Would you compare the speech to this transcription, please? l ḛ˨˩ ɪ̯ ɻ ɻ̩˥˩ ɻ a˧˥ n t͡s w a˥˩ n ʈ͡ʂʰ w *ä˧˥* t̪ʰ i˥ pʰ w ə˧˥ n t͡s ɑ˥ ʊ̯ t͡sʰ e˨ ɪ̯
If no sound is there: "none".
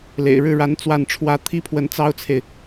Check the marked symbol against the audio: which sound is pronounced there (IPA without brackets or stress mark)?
ä˥